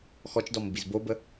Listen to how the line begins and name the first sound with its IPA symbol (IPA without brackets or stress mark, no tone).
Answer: x